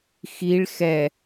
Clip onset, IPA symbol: x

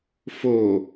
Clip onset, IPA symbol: f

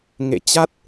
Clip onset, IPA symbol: ŋ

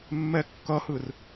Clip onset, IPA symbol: mː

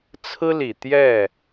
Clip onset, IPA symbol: t͡sʰ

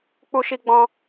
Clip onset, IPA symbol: k͡p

